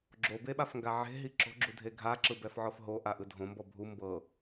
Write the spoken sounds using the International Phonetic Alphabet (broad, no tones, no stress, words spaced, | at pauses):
ɡ͡ǁobeɓafŋɡa ʕe̤ɦi ǁo̤ɡ͡ǁudʱe ɡʱaǁɯbɛfʕɔf ɦoʔaʔɯ dʱõmbɔ bʱu mbɤ